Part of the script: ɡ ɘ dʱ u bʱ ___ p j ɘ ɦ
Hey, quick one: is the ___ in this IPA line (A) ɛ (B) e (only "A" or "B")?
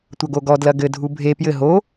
B